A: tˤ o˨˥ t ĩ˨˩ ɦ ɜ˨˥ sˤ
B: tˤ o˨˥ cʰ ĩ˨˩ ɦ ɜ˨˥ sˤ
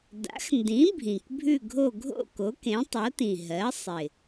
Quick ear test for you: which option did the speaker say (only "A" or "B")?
A